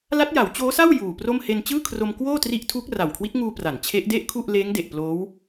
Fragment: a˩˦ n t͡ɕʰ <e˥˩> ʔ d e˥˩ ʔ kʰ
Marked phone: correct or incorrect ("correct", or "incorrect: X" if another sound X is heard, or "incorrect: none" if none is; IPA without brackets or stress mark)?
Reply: incorrect: e˦˥